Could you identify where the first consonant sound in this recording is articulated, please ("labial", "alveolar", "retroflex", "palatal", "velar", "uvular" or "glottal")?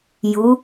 palatal